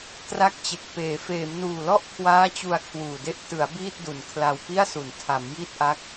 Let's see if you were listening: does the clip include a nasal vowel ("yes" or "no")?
no